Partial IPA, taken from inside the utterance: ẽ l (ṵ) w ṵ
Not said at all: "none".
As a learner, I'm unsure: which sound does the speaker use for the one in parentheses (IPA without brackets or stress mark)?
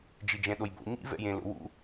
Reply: o̰